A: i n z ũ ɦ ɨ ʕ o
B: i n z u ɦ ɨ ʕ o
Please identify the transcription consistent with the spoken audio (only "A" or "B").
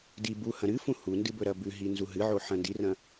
B